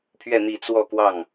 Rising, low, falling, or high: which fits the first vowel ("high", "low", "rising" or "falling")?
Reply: falling